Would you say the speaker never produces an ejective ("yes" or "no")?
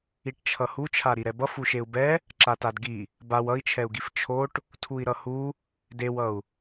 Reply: yes